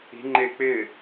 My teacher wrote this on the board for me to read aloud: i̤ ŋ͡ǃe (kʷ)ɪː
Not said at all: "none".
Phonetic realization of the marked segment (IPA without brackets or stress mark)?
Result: k͡p